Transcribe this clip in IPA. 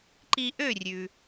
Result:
ǃ i˧ ʔ ø˥˩ rʲ ʉ˩

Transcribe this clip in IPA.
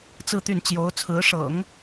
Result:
t͡s ɹ̩˥˧ t̪ y˥˩ n t͡ɕ j o˧˥ ʊ̯ t͡sʰ ɹ̩˧˥ ʂ ɤ̰˨˩˦ ŋ

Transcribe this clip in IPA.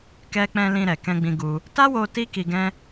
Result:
k ɛ˧ k͡p ɛ̃˧ l ĩ˧ ɾ ɛ˨ k ɛ̃˧ ɡ͡b ĩ˧ ɡ u˧ | t a˦ w o˧ t i˦ k i˧ ɡ ɛ̃˦

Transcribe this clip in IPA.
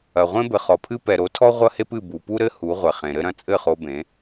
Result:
ɐ˨ ʁʷ ẽ˦ b ɘ˨ χ ɔ˨ pʰ ɨ˦ p ɛ˨ ɾ o˨˦ tʰ ɔ˦ ʁʷ ɐ˦ h e˦ p ɨ˦˨ b u˨ p u˦ ɾ ɘ˦ h u˨˦ ʁʷ ɛ˨ χ ẽ˨ ɾ ɘ˦ ɾ ɐ̃˧ t͡sʼ ɘ˦˨ χ o˧ b ẽ˨˦

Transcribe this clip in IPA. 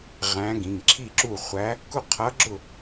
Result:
ʁ æ̃˧˥ ɡ ĩ˩˧˩ ŋ ǁʰ i˥˨ ǁ u˥˨ χʷ æ˧˥ | k ʊ˥˨ qʰ ʌ˧˥ ɡ͡ǁ ʊ˥˨

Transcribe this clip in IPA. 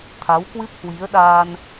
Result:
t̪ʰ a˨˦ w k w ɨ˦˥ p̚ h w i˨˦ ə̯ ɗ aː˧ n

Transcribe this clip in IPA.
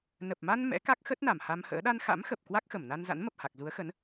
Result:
n ə˨˩ p̚ m a˧ n m ɛ̰˧˥ k a˦˥ k̚ x ə˦˥ t̚ n a˧˩ m h a˧ m h ə̰ː˧˥ ɗ a˧ n x a̰˧˥ m x ə˨˩ p̚ k w a˦˥ k̚ x ə˧˩ m n a˧ n z a̰˧˥ n m ə˨˩ p̚ h a˨˩ k̚ z u˨˦ ə̯ x ə˨˦ n

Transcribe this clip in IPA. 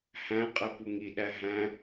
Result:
h æ̃ qʼ ɛ p u ŋ i ɗ æ ɦ æ̃

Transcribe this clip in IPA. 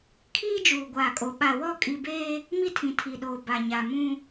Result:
kʰ iː˦ d͡ʒ uː˨ ɡʷ aː˨ kʼ o˨ ɓ a˨ w ɔ˦˨ kʼ i˨ b eː˦ | m i˦ tʰ ĩ˨ tʰ i˨ ɗ oː˨ b a˨ ɲ a˨ m ũ˦

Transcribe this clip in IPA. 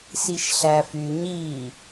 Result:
s i ʃ ɬ æ f y ɲ i

